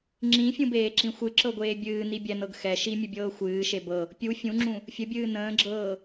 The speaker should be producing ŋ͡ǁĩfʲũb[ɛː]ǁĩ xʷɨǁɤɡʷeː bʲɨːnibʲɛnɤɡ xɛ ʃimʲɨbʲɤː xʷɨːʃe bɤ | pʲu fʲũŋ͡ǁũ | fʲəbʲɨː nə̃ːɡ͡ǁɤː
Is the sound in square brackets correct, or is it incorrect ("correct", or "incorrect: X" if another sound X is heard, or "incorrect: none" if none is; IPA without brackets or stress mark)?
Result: incorrect: eː